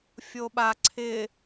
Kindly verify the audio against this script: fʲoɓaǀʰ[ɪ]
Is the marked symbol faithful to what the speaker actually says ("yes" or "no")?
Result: yes